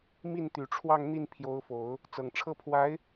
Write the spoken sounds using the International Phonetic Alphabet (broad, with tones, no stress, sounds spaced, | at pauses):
m i˥˩ n t̪ y˨˩ ʈ͡ʂʰ w ɑ˥˧ ŋ n̪ i˥˩ n pʰ j o˧˥ ʊ̯ f o˨˩˦ ʊ̯ | t͡s ɤ˨˩ ŋ ʈ͡ʂʰ ɤ˥˩ pʰ w a˧˥ ɪ̯